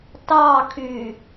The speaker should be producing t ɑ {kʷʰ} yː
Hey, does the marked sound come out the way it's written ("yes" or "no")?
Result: no